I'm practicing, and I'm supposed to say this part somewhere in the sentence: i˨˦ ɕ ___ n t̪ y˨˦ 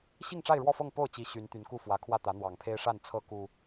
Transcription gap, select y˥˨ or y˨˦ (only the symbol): y˨˦